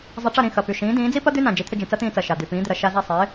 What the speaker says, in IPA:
zˤ ɐ˧ ʈ͡ʂ ɐ˥˩ ɾ ĩ˥˩ x ɐ˩ p y˩ ʃ ĩː˩˥ d ĩː˩˥ d͡z i˥ p ɐ˥ d̪ y˥ n ã˩ d͡ʒ i˩˥ t̪ʰ ʏ˧ d͡ʒ ĩ˩ t͡s ɐ˥ t̪ ĩː˧ t͡s ɐ˩ ʃ a˩ d̪ y˩ p ĩː˩˥ d̪ ɪ˩ ɾ ɐ˧ ʃ a˧ z a˥˩ sˤ ɪː˩˥

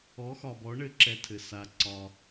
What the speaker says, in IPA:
ɔ˩˥ x ɒ˩ b ɔ˩˥ ɳ ɘ˧ ǁ ɛ˧ tʰ ɘ˩ s a˩ ǀ ɒ˩

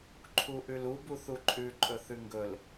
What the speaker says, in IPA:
ǃʰ u ʔ ʉ l u b u θ u ǃʼ ʉ ǃʼ ɵ θ ʉ ŋ ɡ ɵ l

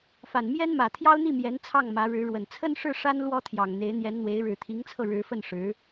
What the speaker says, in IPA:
f a˨˩ n m j ɛ˥ n m ä˨˩ t̪ʰ j ɑ˥ ʊ̯ n̪ i˥˩ m j ɛ˧˥ n t͡sʰ ɑ˥˩ ŋ m ä˧˥ ɻ ɻ̩˧˥ ɻ w ə˨˩ n t͡sʰ ə˥ n ʂ ɻ̩˥˩ ʂ a˥ n l w ɔ˥ t̪ʰ j ɑ˨˩ ŋ n̪ e˧˥ ɪ̯ n̪ j ɛ˧˥ n n̪ w e˧˥ ɪ̯ ɻ ɻ̩˨˩ t̪ʰ i˧˥ ŋ t͡sʰ ɤ˧ ɻ ɻ̩˧˥ f ə˥˩ n ʂ ɻ̩˧˥

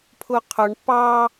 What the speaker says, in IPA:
pʰ ʊ qʰ ʊ ɳ p ɑ

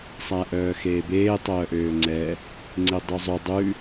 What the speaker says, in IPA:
sˤ æ ʔ œː x eː b eː tˤ œː ʔ øː ŋ͡ǀ ɛ | ŋ͡ǀ e dˤ y zˤ ø dˤ ʉ

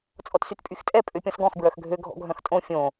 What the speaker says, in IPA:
t͡sʼ ɔ t s y t pʼ y x tʼ ɛ pʼ ø pʲ ɔ̃ s ɡ ɔ̃ x b ɹ œ x ɡʱ ø ɡʱ ɔ̰ ɡʱ œ̃ x tʼ õ fʲ õ

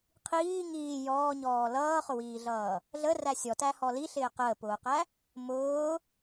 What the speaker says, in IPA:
qʰ iː ŋ iː j ɔː ɲ ɔː l ʌː χ ʊ w iː ɮ ʌː | ɮ ə r æ sʲ ɔ t æ h ɔ l i ɬ ɪː q əː p ʊː q æ | m ʊː

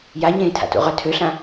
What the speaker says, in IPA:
j a ɲ ẽː tʰ a̰ t ṵ ʁ œ tʰ ø ɬ ã

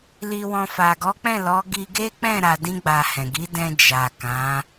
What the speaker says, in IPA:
l i˨ w ɔ̃˨ f a˨ ɡ ɔ˨˦ k͡p ɛ̃˦˨ l ɔ˨˦ ɡ i˧ ɡ e˦ k͡p ɛ̃˦˨ ɾ a˧ d ĩ˦ ɡ͡b a˧ h ɛ̃˨ ɡ i˨˦ d ɛ̃˧ d͡ʒ a˨ k ã˨˦

